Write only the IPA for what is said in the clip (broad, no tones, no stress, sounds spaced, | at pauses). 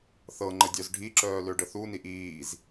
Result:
θ ɤ ŋ͡ǃ ə dʲ œ z ɖʱ i ǁ œː l ø ɖ ə θ u n i ʔ iː z